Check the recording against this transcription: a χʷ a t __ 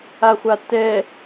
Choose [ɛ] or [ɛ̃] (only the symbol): ɛ